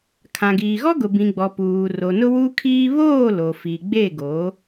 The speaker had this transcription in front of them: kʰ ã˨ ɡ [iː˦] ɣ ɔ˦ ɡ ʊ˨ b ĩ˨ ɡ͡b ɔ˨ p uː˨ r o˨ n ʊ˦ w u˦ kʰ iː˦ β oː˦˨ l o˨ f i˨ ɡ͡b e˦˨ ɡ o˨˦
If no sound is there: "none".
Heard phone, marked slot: iː˨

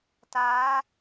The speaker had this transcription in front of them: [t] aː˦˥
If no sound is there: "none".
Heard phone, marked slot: t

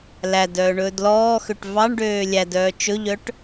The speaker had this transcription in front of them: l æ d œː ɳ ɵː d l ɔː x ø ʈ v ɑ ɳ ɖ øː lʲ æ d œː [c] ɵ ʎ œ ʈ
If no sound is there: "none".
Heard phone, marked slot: t͡ʃ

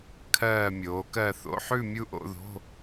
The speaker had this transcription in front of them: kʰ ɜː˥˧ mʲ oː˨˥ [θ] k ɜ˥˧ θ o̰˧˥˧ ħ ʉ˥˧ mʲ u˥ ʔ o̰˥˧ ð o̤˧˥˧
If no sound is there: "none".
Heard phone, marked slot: none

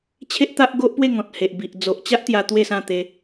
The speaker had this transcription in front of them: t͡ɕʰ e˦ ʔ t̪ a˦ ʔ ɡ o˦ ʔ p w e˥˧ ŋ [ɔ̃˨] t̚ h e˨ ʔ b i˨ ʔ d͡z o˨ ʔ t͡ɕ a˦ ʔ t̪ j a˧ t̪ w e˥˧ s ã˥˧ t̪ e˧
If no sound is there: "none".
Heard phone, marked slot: ɔ̃˨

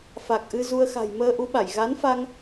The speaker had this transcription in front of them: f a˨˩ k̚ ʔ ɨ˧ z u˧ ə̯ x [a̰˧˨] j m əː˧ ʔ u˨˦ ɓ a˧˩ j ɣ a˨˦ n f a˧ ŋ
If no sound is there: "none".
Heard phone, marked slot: a̤˨˩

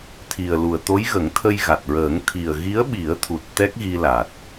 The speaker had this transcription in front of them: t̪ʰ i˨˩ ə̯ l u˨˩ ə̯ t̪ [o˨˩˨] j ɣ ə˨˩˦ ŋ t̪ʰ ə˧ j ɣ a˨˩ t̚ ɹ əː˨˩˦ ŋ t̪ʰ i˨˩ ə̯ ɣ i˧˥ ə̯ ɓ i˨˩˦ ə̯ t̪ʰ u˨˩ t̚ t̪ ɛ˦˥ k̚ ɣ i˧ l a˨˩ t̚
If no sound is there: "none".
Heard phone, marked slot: o˧˥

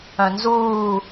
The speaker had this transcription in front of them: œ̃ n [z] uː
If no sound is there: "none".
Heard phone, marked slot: z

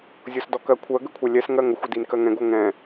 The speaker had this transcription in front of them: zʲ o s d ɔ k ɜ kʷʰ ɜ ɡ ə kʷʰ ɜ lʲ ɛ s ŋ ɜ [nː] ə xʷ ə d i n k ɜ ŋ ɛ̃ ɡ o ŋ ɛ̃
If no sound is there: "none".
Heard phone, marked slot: ŋ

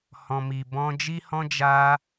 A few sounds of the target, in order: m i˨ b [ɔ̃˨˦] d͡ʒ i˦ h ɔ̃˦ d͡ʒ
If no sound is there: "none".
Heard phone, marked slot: ɔ̃˧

